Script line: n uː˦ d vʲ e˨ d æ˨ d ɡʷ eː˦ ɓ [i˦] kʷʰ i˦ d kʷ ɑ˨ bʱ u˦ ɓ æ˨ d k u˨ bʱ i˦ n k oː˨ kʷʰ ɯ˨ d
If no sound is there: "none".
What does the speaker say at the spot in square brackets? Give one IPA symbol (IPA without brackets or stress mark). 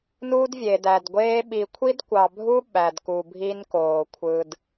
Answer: i˨